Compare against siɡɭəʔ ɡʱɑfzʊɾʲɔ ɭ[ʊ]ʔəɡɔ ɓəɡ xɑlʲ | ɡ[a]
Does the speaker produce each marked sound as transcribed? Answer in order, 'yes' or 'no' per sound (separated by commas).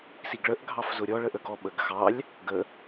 no, no